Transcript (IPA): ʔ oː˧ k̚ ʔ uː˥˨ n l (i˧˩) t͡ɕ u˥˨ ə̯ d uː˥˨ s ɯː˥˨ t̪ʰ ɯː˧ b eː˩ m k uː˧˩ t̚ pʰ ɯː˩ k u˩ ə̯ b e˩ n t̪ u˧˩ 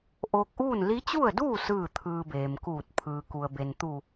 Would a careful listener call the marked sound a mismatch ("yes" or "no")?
yes